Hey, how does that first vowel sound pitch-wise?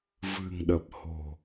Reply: low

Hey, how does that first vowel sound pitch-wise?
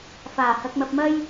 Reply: low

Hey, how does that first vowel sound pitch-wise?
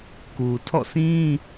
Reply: low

